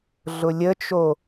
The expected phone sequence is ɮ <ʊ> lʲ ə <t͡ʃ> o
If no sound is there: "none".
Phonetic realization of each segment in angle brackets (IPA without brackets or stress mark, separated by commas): ʊ, t͡ʃ